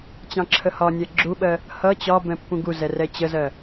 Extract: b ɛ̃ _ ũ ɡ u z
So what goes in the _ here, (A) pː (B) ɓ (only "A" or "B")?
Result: A